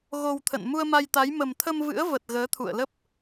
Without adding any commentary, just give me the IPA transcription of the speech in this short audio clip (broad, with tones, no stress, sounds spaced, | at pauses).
ɣ o˧ w t̪ʰ ə̰˧˨ n m u˧ ə̯ m a˧ j t̪ a˨˦ j m ə˨˩ m t̪ʰ ə˧ m v ɨ̰˧˥ ə̯ v ə˨˩ t̚ ɣ əː˨˦ t̪ʰ ṵ˧˨ ə̯ l ə˦˥ p̚